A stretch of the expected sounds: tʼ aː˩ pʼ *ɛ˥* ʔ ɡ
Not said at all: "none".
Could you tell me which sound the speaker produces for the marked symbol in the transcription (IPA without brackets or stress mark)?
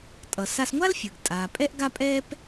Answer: ɛ˥